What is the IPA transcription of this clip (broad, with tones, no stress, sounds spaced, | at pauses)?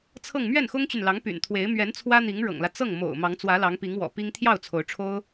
t͡sʰ ɤ˥˧ ŋ m ɥ ɛ˥˩ n x ʊ˥ ŋ t͡ɕ y˨ n l ɑ˧˥ ŋ p y̰˨˩ n t̪ʰ w e˧˥ ɪ̯ m ɥ ɛ˧˥ n t͡sʰ w ä˥ n̪ i˧˥ ŋ ɻ ɤ̰˨˩ ŋ l ä˦ t͡s ɤ˥˩ ŋ m o̰˨˩ ʊ̯ m ɑ˧˥ ŋ t͡s w ä˧˥ l ɑ˧˥ ŋ p i˧˥ ŋ w ɔ̰˨˩ p i˥ ŋ t̪ʰ j ɑ˥˩ ʊ̯ t͡sʰ o˧˥ ʊ̯ ʈ͡ʂʰ o˥ ʊ̯